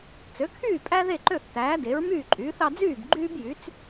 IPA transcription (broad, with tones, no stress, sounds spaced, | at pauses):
t͡s ø˩˥ kʰ yː˥˩ pʼ æ˥ ð e˥˩ ǃ ø˥˩ θ t æː˩˥ d e˩˥ ɹ m yː˥˩ ǃʼ yː˩˥ θ ɑ˧ d͡z yː˥˩ b ɡ͡ǃ yː˥ b j y˩˥ t͡s